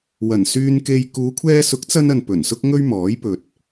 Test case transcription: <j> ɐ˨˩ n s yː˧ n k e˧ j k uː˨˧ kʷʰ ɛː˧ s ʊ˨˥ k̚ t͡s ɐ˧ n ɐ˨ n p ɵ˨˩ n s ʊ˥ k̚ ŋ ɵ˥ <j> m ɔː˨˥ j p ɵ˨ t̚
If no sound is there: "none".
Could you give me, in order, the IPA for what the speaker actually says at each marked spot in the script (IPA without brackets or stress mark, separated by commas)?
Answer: w, ɥ